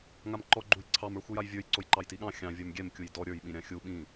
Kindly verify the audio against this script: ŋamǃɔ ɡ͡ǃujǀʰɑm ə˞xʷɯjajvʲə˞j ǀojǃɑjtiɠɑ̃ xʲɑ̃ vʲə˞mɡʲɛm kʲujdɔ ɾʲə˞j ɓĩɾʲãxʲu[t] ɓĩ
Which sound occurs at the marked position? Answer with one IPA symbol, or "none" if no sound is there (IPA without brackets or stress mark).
none